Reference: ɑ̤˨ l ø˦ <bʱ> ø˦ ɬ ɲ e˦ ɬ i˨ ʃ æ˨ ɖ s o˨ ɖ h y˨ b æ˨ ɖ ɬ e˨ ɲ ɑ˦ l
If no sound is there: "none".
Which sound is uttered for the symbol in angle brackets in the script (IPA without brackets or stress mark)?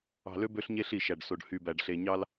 b